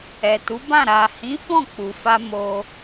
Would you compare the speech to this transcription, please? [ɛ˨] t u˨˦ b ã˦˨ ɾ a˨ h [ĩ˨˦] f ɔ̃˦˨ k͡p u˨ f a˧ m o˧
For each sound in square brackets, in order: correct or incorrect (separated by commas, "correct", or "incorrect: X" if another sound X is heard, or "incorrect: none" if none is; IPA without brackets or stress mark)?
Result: correct, correct